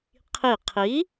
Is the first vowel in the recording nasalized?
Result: no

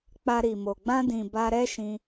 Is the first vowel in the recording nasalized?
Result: no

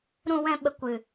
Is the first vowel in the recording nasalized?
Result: yes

